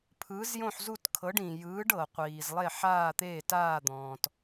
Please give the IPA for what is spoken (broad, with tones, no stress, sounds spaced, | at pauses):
pʰ ɯː˨˥ z j õ˥˨ ħ z u˥˨ t kʰ ɤ˨˥ ɖ ĩ˨ j ɯː˨˥ ɖ ɤ˨ qʷ iː˨ z lˠ e˥˨ ħ aː˥˨ t̪ eː˥˨ t aː˥˨ d̪ ɔ̃ː˨ t